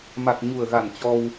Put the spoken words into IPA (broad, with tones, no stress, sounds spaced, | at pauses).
m a˨˩ k̚ ɲ u˨˩ ə̯ ɣ a˨˩ n t͡ɕ ɔ˧ w